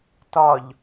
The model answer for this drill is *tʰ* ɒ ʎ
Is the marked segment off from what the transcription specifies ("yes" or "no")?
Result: yes